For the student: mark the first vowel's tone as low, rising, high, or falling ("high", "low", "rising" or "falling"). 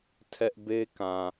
high